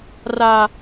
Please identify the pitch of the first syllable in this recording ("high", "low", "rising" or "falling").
low